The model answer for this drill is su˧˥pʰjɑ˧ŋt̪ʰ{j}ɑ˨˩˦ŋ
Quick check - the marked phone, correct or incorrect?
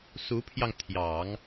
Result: correct